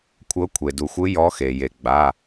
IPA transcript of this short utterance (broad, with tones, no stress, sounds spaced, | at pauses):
kʷʰ ɤ˨˦ kʷʰ e˩ d u˩ xʷ ɯ˨˦ j ɔ˨˦ x e˩ j e˩ ɡ͡b a˩˧˩